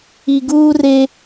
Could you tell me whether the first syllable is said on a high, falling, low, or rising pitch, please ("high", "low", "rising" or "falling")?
low